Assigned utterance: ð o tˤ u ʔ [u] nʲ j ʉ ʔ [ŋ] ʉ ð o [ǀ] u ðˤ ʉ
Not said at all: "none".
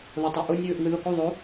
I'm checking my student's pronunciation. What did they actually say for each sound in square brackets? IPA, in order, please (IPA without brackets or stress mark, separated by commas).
u, ŋ, k